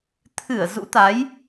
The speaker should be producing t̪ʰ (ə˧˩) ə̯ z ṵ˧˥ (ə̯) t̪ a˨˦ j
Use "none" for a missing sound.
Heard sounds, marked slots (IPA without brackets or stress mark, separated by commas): ɨ˧˩, none